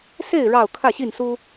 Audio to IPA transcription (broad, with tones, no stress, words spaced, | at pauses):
se˥˨ɪ̯ ɻɑ˥˨ʊ̯ kʰä˥˨ɕi˥˨nsu˦